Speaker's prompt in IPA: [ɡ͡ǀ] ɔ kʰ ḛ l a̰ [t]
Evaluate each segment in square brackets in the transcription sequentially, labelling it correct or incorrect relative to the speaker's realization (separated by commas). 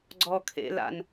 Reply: correct, incorrect